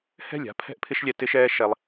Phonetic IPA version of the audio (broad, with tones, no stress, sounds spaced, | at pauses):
h ɛ̤˦˨ lʲ a̤˦ pʰ ɛ̤˦ ʔ pʰ ɪ˦ ʃ lʲ ɛ˧ t ɪ˦ ʃ ɛː˦ ʃ ɛ˦ lˠ